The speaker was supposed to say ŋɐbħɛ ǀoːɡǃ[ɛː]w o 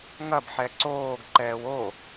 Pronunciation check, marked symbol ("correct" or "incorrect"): correct